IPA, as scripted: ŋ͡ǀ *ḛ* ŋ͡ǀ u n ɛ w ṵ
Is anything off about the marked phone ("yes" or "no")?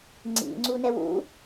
yes